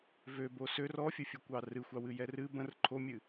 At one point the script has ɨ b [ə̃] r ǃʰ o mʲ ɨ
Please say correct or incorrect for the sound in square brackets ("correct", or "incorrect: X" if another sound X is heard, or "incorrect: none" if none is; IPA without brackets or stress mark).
correct